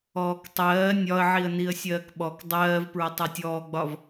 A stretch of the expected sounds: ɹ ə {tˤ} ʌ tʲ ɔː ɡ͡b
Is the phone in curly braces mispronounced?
no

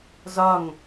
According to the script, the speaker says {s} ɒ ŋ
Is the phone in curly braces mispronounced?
yes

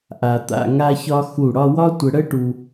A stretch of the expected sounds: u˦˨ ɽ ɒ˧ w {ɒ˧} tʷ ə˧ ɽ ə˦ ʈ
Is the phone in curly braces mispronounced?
yes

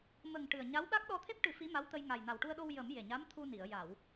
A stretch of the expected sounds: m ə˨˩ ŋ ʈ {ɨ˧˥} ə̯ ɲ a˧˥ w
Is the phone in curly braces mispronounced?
yes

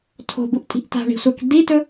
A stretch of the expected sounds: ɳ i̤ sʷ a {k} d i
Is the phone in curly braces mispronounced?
no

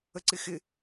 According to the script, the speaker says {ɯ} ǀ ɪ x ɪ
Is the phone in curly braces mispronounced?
yes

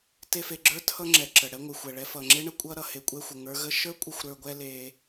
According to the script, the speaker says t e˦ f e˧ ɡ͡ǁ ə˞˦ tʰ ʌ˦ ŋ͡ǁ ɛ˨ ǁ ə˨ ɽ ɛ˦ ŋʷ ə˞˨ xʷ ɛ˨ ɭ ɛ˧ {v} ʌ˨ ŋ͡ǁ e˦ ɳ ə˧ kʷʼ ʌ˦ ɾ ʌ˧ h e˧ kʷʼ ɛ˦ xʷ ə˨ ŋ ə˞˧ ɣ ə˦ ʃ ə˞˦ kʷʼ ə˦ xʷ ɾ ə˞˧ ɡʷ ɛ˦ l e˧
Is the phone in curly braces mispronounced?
yes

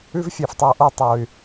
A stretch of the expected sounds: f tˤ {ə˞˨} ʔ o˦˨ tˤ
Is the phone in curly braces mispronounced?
no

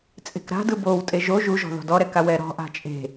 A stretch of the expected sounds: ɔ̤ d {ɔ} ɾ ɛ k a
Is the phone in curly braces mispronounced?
no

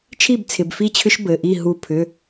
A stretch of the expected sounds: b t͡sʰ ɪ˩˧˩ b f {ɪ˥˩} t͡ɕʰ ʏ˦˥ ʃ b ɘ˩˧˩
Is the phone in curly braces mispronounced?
yes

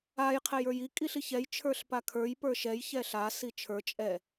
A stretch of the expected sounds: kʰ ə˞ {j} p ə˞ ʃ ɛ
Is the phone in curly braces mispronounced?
no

